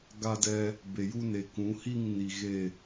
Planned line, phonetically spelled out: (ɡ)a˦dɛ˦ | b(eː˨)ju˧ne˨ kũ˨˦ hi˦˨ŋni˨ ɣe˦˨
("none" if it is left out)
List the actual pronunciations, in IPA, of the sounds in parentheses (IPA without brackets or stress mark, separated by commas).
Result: ɡ, e˨